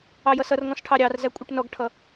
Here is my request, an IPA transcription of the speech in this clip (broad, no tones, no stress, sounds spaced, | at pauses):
ɑ j ʌ s ʌ r ŋ ɔ̃ s ʈʰ ɑ ɾʲ ɑ r z æ kʷʼ ɛ ʈ n ɔ ɡ ʈʰ ʌ